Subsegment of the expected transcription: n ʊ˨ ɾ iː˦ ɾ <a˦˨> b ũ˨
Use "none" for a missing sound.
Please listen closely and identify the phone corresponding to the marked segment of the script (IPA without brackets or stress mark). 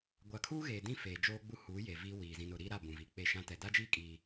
a˦˨